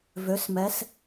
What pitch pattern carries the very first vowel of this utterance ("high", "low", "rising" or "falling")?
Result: rising